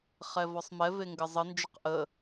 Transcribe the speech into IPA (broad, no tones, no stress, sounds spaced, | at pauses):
χ ɛ v ɔ sˤ m ɛ v e ŋ ɡ ə zˤ ə n d͡ʒ ə q ʔ ə